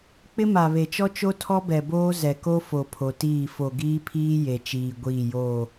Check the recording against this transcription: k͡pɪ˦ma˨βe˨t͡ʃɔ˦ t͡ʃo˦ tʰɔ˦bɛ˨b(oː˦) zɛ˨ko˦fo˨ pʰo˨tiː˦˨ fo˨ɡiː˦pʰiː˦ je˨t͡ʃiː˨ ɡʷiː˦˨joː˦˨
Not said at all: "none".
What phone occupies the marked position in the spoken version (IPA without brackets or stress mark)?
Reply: oː˦